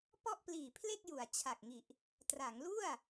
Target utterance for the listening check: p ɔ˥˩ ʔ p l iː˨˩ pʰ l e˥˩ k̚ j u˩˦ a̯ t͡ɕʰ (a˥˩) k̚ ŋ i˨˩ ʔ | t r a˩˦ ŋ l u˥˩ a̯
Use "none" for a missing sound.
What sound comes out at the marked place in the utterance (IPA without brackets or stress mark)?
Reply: a˨˩